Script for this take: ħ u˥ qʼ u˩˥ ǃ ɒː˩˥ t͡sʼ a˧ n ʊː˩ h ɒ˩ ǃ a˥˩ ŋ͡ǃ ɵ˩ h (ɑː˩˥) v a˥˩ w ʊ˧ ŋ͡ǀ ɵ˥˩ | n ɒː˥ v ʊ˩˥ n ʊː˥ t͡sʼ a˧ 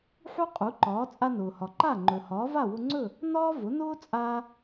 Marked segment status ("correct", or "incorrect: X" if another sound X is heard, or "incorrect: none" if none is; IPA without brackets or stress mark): incorrect: ɒː˩˥